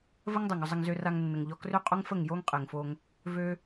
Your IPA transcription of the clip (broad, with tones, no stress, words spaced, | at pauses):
və˦ŋdˤo˨ŋʏ˧zˤə˧ŋ zø˧ra˧ŋnːə˨ŋʎɔ˧ krʏ˦qʼo˦ŋfə˦˨ŋ jo˦ŋqʼe˨ŋfo˧ŋ | vø˦